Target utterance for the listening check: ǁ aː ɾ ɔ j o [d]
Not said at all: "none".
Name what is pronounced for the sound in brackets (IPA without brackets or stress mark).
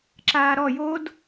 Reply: d